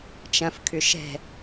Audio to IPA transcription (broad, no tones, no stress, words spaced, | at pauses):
t͡ʃɐ̃f kʰʏʃɛ̤